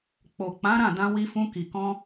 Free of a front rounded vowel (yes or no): yes